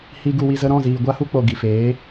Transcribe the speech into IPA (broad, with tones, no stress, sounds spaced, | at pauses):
h i˧ ɡ u˧ w i˧ z ə˧ ɾ ɔ̃˦˨ z iː˨ ɡʷ a˦ h u˦ k͡p o˨ ɡ i˨ f eː˨˦